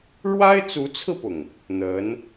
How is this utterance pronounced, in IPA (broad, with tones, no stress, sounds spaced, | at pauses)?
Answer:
ɻ w a˥ ɪ̯ t͡s u˧˥ t͡sʰ ɹ̩˧ p ʊ˩ ŋ | n̪ ə˧˥ n